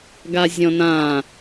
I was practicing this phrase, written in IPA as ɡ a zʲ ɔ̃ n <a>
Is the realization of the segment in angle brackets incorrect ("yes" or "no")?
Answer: yes